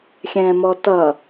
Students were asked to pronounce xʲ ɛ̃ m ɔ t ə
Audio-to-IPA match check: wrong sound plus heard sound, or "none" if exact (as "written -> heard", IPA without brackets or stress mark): ə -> ʌ